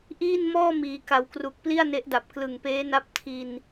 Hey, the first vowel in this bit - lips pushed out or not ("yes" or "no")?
no